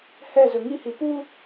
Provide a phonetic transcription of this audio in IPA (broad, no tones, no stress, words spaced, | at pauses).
hɛzɵ ŋihi pu